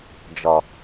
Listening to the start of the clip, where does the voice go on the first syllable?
low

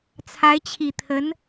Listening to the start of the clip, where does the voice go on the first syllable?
rising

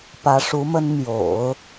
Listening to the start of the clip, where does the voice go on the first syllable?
rising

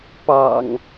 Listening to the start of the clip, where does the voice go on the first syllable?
low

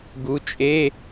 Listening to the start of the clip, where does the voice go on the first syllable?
rising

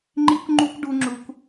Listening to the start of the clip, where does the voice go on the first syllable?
high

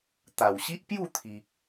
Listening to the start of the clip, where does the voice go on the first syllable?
low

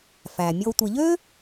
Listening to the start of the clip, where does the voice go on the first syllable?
low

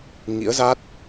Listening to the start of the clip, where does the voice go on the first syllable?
rising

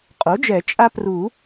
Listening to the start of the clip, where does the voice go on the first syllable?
rising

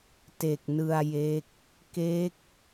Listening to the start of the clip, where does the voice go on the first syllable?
low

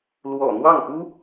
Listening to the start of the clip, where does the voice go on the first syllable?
low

